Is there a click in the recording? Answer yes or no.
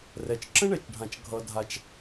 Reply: yes